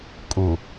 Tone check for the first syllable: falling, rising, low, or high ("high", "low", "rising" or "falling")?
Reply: low